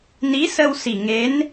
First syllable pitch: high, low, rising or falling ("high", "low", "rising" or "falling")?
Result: rising